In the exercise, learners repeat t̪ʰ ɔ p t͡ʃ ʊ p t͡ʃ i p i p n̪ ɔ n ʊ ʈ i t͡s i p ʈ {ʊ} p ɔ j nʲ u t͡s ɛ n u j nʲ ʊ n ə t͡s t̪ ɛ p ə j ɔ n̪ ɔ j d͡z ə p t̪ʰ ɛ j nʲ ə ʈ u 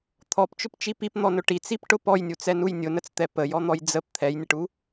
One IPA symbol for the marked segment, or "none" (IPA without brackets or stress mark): ʊ